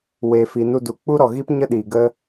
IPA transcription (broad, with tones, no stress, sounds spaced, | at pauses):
w eː˨ f i˨ n u˧ d u˨ k͡p u˦ ɾ ɔ˨ ɣ i˦ p ɲ ə˦ ɗ i˨ ɡ ə˦